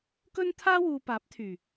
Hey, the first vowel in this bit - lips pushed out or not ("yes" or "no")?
yes